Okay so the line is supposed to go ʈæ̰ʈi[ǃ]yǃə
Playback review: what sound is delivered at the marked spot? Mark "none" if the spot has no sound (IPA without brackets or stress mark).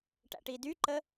d